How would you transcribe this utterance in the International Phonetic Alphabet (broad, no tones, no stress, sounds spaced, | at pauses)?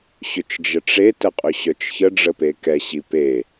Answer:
ɕ ʏ t͡ʃ d͡ʒ ə ʈ͡ʂ e t ə qʼ ʏ ɕ œ t͡ʃ ç ə ɖ͡ʐ ə p e k ɛ ɕ i p e